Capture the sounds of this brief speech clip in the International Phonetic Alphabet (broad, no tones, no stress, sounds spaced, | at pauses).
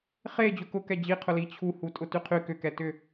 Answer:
χ e d͡ʑ ʊ k ʊ k ɛ d͡ʑ i qʰ ʊ l i t͡ɕʰ u h u tʼ ʊ t y qʰ y k ʏ k ɛ t ʏ